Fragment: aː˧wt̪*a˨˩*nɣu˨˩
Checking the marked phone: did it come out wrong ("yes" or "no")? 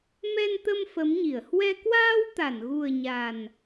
yes